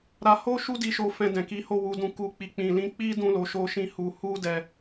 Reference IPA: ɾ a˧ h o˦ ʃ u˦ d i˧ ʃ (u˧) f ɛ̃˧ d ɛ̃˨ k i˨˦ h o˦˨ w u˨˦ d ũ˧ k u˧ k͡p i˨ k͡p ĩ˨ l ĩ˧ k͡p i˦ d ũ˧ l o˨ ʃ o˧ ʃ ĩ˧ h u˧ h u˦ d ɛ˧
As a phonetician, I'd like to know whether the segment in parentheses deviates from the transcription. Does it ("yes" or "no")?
yes